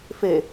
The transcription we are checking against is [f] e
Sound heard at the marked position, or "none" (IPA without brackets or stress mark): f